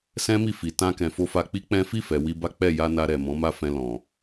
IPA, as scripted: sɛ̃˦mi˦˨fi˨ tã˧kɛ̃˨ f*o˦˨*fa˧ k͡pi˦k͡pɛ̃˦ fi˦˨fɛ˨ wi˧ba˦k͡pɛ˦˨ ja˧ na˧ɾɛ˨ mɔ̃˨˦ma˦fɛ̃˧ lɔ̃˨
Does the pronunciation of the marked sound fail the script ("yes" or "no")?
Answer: yes